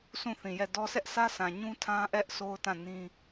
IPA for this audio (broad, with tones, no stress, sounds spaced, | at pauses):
s ũ˦˨ θ ĩ˨ j ɛ˦˨ d ɔ˦ s ɛ˦ ʔ sʰ ä˦ sʰ ã˨ ɲ ũ˦ tʰ ã˦ ʔ ɛ˦ ʔ s o˦ ʊ̯ t ã˦˨ n ĩ˦